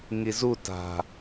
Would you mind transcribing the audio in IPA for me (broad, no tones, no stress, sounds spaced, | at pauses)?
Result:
ŋ i z u t a̤